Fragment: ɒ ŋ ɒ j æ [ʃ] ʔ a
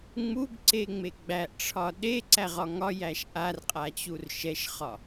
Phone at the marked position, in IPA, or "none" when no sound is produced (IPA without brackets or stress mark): ʃ